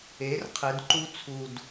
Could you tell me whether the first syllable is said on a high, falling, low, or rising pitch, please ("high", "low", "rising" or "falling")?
rising